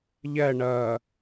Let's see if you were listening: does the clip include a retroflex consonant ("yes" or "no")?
yes